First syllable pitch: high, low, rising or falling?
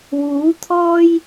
rising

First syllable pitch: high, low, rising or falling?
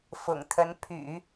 low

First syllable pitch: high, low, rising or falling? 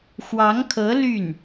rising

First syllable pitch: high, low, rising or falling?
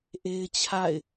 high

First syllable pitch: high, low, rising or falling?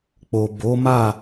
low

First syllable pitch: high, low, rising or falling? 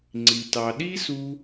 low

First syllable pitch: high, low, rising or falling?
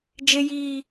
high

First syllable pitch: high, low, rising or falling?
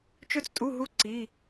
high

